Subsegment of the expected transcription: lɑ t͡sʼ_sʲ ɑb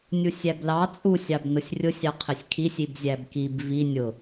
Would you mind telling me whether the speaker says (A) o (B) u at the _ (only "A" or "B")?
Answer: B